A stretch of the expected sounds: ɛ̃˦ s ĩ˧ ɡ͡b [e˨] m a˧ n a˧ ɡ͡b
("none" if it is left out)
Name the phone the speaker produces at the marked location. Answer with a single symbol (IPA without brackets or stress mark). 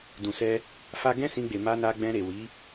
e˨